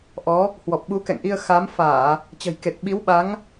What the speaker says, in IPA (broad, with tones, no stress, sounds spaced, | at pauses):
ʔ ɔ˨˦ | h w ɔ˨˩ p̚ ɓ u˨˦ k ɛ̰˧˨ ŋ ʔ i˧ ə̯ x a˨˦ m f aː˧˩˨ | t͡ɕ ə̤˨˩ j k e˨˩ t̚ ɓ i˨˦ w ɓ a˨˦ ŋ